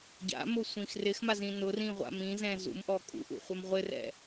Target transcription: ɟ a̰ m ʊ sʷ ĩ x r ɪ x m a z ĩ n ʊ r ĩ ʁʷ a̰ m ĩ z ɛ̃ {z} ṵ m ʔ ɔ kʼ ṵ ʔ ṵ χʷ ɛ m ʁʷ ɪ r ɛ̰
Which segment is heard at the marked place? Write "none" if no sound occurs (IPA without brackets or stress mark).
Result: z